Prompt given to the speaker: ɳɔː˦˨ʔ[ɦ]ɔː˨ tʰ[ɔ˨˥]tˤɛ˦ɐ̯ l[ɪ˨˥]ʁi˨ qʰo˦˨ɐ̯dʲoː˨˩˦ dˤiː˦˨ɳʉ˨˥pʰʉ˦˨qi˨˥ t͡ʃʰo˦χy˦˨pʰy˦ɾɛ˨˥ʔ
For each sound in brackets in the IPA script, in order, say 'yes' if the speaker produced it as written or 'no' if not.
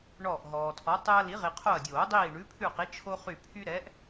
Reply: yes, yes, no

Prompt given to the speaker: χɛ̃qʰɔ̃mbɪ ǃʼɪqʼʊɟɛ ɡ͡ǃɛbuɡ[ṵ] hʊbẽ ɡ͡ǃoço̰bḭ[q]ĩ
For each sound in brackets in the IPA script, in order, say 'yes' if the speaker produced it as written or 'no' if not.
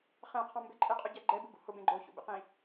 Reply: yes, yes

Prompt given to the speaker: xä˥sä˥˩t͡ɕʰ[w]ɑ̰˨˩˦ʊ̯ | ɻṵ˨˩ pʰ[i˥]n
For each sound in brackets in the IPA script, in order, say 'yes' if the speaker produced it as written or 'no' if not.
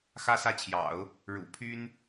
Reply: no, no

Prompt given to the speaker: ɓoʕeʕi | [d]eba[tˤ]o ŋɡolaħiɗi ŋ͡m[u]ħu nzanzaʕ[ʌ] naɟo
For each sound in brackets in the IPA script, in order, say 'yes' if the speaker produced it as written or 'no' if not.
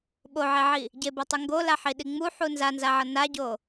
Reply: no, yes, yes, yes

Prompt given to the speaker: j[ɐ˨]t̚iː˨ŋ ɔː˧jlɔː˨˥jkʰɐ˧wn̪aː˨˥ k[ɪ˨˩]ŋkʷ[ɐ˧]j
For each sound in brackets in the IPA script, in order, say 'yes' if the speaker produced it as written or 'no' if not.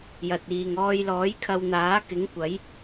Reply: yes, no, no

